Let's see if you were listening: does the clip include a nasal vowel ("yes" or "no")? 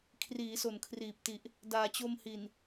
no